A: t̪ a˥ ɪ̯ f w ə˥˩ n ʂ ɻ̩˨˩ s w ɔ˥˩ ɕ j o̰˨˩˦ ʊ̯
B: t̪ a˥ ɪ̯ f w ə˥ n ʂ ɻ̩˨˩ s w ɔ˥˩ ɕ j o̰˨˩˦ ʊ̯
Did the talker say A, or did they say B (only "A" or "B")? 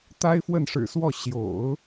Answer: A